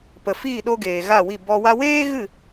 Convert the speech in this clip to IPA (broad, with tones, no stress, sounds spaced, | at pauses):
p ə˨ f iː˦˨ ɗ o˧ ɡ eː˨ ɣ a˦˨ w i˦˨ b ɔ˧ w a˦ w eː˦ ɣ ɨ˦˨